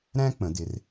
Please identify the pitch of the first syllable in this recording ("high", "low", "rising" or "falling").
high